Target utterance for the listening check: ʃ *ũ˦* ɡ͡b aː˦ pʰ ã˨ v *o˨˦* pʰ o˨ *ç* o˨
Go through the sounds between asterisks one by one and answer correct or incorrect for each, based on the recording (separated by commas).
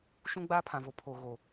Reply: correct, incorrect, incorrect